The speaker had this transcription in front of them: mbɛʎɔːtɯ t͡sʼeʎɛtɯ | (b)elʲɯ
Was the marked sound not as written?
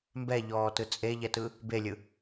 no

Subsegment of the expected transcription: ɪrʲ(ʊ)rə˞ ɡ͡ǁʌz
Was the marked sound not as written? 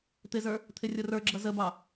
no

